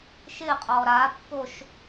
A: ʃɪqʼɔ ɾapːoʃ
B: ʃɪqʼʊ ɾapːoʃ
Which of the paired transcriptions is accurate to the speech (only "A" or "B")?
A